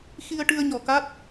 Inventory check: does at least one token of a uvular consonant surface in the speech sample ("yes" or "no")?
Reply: no